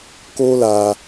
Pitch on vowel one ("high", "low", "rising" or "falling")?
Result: high